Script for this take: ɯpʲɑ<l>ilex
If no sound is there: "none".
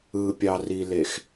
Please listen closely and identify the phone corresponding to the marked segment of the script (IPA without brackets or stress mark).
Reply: r